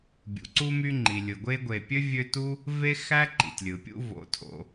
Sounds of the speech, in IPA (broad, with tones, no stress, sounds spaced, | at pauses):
bʲ ṵ˩ ǀ u˦ m y˦ ŋ͡ǃ i˩ lʲ ɯ˩ ɡʷ e˦ ɡʷ e˨ pʲ ø˥ vʲ ø˦ t u˥ | v e˥ x æ˥ ǃ ḭ˩ tʲ lʲ ɯ˩ pʲ ṵ˦ v o̰˨ tʰ o̰˨